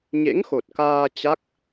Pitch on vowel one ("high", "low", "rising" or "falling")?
rising